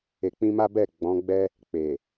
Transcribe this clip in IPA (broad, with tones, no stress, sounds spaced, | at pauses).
e˨ k͡p ĩ˧ m a˦ b ɛ˦˨ ɡ͡b ɔ̃˨˦ ɡ͡b ɛ˦ | k͡p e˨